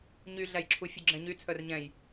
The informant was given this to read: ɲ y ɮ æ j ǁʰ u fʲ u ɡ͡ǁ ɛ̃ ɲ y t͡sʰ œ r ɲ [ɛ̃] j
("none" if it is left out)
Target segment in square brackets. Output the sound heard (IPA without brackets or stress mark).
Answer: ɛ̃